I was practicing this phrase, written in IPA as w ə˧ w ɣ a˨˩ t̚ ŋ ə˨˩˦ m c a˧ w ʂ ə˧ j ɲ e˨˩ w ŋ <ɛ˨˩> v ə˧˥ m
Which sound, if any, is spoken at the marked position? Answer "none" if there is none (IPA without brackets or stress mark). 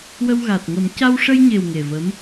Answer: e˨˩